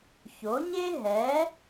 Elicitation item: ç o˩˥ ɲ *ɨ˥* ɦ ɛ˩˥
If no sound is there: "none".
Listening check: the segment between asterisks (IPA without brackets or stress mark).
e˥